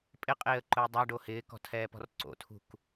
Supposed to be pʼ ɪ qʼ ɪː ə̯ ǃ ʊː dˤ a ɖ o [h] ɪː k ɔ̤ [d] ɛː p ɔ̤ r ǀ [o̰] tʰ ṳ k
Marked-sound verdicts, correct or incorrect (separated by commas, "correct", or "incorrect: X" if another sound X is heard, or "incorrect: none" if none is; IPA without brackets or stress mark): correct, incorrect: tʰ, correct